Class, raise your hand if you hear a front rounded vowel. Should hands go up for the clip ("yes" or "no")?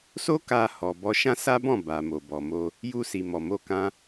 no